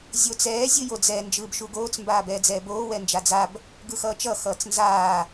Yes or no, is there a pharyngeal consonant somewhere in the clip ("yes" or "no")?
no